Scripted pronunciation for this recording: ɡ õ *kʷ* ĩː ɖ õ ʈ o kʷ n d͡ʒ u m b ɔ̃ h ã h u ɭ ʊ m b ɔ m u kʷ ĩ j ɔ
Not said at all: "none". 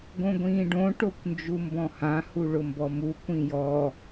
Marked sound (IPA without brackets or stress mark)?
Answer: ɡʷ